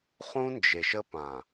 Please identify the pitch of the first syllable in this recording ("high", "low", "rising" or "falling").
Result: high